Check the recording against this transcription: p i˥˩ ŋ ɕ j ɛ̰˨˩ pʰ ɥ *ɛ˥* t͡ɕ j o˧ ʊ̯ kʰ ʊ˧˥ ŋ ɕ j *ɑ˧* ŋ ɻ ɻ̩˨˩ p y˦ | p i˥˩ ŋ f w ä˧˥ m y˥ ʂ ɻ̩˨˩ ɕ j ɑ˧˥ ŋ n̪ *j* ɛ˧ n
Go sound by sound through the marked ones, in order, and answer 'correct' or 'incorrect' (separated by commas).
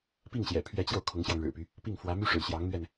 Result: incorrect, correct, incorrect